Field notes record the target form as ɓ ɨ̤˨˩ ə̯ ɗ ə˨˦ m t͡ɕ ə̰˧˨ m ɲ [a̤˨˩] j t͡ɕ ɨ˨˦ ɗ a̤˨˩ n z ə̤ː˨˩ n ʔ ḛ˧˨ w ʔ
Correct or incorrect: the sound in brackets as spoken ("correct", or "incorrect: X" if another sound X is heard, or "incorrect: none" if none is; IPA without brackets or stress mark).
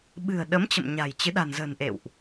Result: correct